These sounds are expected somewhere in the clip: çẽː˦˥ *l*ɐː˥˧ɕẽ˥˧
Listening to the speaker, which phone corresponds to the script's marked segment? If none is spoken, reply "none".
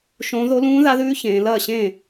l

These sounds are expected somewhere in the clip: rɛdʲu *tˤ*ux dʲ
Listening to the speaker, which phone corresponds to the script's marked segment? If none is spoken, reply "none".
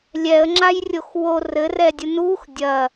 n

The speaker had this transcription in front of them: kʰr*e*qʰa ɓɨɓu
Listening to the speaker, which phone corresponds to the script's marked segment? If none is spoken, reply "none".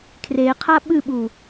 e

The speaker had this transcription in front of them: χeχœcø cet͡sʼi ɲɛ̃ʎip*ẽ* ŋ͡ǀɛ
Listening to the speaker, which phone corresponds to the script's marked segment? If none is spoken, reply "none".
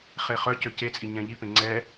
ẽ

